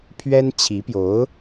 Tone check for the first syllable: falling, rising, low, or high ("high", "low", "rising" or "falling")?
high